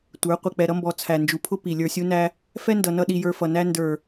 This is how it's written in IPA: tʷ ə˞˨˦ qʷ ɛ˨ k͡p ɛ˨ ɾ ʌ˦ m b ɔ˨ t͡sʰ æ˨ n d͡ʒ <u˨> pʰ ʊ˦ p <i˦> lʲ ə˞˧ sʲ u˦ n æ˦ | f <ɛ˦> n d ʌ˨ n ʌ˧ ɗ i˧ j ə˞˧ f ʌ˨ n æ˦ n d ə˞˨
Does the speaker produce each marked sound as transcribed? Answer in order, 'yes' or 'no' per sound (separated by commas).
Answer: yes, no, yes